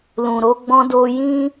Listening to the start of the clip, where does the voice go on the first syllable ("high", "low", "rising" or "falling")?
low